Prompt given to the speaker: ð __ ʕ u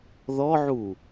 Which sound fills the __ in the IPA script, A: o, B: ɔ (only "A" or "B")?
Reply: B